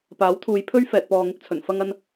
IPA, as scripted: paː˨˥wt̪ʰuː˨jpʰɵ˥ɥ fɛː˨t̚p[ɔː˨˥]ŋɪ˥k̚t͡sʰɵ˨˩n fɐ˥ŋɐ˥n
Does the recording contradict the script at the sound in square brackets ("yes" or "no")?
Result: yes